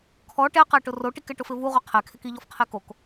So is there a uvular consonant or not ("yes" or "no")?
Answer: yes